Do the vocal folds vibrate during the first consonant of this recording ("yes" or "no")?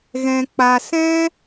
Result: yes